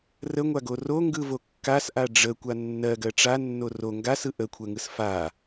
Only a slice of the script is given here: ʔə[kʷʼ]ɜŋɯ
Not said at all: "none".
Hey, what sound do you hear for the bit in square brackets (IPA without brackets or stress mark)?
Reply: kʷʰ